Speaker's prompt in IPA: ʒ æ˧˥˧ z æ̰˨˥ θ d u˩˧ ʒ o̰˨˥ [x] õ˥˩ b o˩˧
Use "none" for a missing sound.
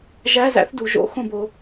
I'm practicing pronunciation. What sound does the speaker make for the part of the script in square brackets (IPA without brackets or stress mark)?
x